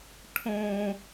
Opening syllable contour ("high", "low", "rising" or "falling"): high